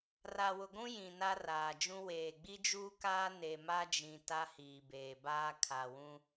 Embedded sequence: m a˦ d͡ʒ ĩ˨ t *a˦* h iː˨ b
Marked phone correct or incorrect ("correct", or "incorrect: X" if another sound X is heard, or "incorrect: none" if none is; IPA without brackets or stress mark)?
correct